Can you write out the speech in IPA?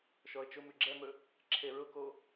ʃ ɔ ə̯ t͡ʃ ʊ m ʉ ɡ͡ǁ ɛ m ɵ | ǁʰ e ɹ ʊ k o

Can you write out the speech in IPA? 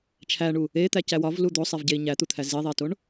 t͡ʃʰ æ ɳ u | e t̪ æ c æ w ɒ v l u d̪ o sˤ i v ɟ e i̯ ɲ æ t̪ u t̪ʰ æ z i ðˤ e t o ɳ

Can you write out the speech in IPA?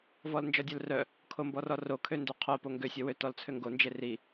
v ɔ l n d͡ʒ ɔ dʲ œ l r œ | kʰ o m b ɔ r ɔ r o kʰ ø n d ø qʰ o p o ŋ ɡ ø sʲ ɔ w ø t ɔ l t͡sʰ ø ŋ ɡ o n d͡ʒ e r i

